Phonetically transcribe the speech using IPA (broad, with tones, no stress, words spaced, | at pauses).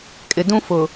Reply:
kʼɪ˨dũ˦fʊ˨